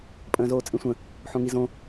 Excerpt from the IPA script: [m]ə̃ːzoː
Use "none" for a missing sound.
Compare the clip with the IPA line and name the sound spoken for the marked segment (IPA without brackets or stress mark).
pʼ